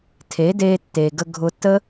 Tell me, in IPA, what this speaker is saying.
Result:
tʰe˨˦deː˧ tːeː˨ɡə˧ɡʱʊ˧tːə˦

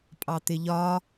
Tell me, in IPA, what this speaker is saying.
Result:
pʼɑt̪ɪʎɒ

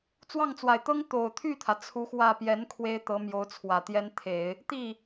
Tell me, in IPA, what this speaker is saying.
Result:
t͡swɑ˥˩ŋt͡swa˨˩ɪ̯t̪ɤ˥ŋ t̪o˨˩ʊ̯t̪ʰy˥˩t̪ʰä˩ t͡sʰu˧˥xwä˥˩ pjɛ˧˥n kʰwe˥ɪ̯t̪ɤ˧˥mjo˧˥ʊ̯ t͡sʰwä˨˩t̪jɛ˥n t̪ʰe˨˩˦ɪ̯ | t̪i˥˩

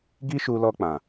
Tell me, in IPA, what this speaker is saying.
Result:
ɡi˦ʃu˧lɔ˧ k͡pã˨

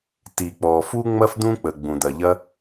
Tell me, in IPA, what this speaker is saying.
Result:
ti˩k͡pɔ˩ fu˥ŋ͡mɐ˥f d̪ũ˥k͡pə˩ ɡ͡bũ˩d̪ɐ˩ʎɐ˥

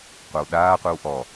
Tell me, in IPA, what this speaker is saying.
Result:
qʷawɗaːqʷɨw ʔɔ

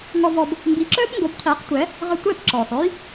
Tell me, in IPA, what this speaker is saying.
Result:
ŋɔ˧vɔ˧b | mbi˩˥ǁœː˥pŋɡo˩˥bqʰiː˩˥q tʷɛ˩˥ | ʁə˧ tʷɛ˥˩p ǁɔː˩sˤœ˥j

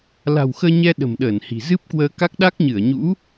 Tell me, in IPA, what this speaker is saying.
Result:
la̤˨˩wxəː˧ɲɛ˧ ɗə̤˨˩mɗəː˧˩nhi̤˨˩ zɨ˦˥p̚kwəː˧ka˦˥k̚ ɗa˦˥k̚ɲɨ˧˩ə̯ɲṵ˧˥

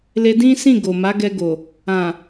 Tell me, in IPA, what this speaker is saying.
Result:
le˧dĩ˦ sĩ˦˨ ɡo˨ma˨˦ɡɛ˧ɡo˨ | ã˨

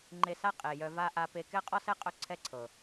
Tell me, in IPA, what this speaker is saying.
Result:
ŋ͡ǃe˧sa˦ qʼe˨jœ˧va˦ ʔa˧pe˧ kɛ˦qʼɔ˦sɛ˦ qʼœ˦ǀʰɛ˦ǀʰɤ˨

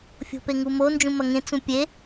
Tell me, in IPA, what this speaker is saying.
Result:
fʲo̤peŋumo nd͡ʒũmɐŋẽ t͡sũpʲe

